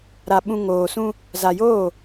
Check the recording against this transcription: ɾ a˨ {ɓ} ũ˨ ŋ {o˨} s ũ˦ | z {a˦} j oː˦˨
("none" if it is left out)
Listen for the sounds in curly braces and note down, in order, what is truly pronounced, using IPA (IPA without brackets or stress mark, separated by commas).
ɓ, oː˨, a˨